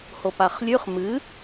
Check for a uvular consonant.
present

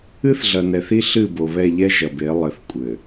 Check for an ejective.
present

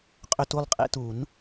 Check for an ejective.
present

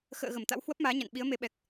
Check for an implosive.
present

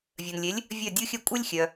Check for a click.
absent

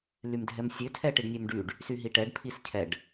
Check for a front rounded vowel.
present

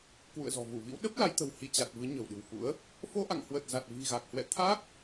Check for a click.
absent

